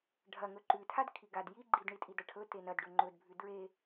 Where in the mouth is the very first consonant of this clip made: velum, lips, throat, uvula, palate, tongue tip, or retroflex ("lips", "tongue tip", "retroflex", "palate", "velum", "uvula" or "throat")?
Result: retroflex